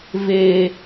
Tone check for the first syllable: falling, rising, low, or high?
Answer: high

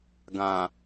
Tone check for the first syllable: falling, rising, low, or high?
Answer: low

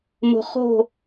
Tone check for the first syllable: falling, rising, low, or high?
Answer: low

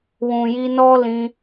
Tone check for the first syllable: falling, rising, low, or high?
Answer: low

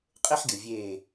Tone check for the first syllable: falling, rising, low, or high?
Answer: high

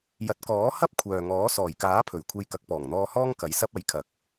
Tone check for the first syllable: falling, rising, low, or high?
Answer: rising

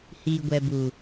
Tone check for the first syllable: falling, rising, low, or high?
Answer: low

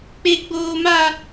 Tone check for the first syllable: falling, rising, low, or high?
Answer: high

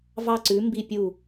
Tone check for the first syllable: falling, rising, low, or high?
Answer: falling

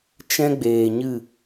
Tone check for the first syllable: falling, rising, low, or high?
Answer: high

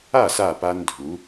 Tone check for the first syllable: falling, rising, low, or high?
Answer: falling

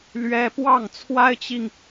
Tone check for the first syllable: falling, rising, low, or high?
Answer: high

